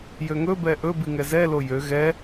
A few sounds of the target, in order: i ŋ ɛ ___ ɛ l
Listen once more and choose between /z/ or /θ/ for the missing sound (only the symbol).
z